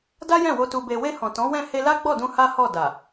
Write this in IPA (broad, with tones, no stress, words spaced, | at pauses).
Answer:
da˦jɛ̃˦˨wo˧ tu˨be˨we˧ hɔ̃˨tɔ̃˨˦wɛ̃˦˨ he˧la˦ɡ͡bɔ˦˨dũ˧ ha˦hɔ˦˨ da˨